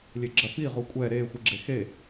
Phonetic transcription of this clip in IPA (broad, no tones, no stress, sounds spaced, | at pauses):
lʲ e ɡ͡ǁ ɐ f i ʁ u kʷʼ ɛ ɾ e xʷ ɨ ɡ͡ǁ e x e